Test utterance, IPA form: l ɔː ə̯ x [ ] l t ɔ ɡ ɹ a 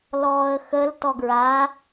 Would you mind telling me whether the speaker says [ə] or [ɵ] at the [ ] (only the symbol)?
ə